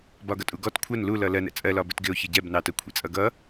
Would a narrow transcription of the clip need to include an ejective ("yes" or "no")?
yes